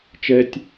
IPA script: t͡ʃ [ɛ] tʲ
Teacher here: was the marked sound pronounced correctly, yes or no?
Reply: yes